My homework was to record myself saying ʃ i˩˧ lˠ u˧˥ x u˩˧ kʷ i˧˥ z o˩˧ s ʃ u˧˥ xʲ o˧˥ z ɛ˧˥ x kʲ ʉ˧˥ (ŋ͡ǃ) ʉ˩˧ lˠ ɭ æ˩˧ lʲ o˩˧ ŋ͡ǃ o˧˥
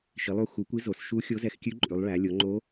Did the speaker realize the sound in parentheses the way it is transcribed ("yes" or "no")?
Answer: no